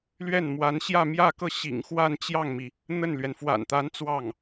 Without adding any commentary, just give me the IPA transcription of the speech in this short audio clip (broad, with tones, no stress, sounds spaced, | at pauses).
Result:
l ɥ ɛ˥˩ n m w a˧˥ n ɕ j ä˥˧ m j ä˥˧ k ɤ˥˩ ɕ ḭ˨˩ ŋ x w a˥˧ n t͡ɕ j ɑ˥˩ ŋ m i˩ | n̪ ə˥˩ n l ɥ ɛ˩ n f w a̰˨˩ n t̪ a˧˥ n t͡s w ɑ˥˩ ŋ